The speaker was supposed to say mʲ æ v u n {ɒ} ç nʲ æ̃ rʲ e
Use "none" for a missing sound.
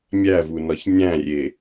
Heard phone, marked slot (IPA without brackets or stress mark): ɒ